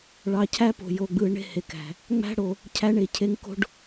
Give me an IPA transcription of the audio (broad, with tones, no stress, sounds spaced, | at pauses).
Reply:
ɭ ɑ˨ cʰ æ˦ p o̤˨ j o˨ ɡ͡b ɯ˨ ɳ e̤˦ h e˨ k æ̤˨ | ŋ͡m æ̤˦ ɽ o˨ | cʰ æ˦ ɳ e˨ cʰ e˦ ŋ k o̤˦ ɖ